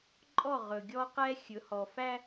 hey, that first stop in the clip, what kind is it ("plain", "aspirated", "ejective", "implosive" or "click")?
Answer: click